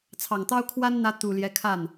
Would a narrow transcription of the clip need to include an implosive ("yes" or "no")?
no